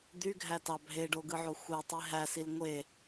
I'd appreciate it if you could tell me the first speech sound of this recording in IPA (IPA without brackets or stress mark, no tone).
d̪